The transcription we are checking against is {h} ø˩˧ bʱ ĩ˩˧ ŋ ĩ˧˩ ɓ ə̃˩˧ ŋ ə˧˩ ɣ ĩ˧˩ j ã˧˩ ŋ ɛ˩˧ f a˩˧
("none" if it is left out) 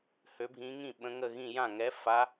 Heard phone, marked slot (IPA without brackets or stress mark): h